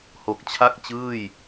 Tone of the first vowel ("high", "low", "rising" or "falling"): low